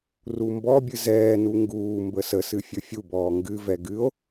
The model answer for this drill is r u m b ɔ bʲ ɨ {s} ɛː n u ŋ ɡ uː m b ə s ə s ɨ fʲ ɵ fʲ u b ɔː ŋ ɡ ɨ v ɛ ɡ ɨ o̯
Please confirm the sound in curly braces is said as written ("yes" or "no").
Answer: no